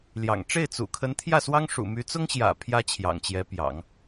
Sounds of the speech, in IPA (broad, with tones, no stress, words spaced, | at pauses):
ljɑ̰˨˩ŋ ʈ͡ʂe˥˩ɪ̯t͡sṵ˨˩kʰə˧˥n t̪ʰjä˥˩swɑ˥ŋ ʂṵ˨˩my˧˥t͡sʊ˥ŋɕjä̰˨˩ pʰjä˥ t͡ɕʰjɑ̰˨˩ŋt͡ɕjɛ˧˥pjɑ̰˨˩˦ŋ